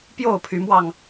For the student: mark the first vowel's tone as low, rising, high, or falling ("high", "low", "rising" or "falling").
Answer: falling